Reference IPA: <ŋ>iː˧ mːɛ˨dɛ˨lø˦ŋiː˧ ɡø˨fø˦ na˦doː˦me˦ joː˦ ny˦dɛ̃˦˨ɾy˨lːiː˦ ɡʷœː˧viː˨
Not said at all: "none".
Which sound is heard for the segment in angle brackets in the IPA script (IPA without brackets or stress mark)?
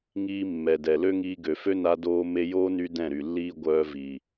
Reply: ŋ